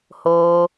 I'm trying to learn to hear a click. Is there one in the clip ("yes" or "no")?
no